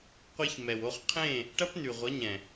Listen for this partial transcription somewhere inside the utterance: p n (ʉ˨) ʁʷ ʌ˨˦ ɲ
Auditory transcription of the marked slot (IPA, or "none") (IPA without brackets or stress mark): ʉ˨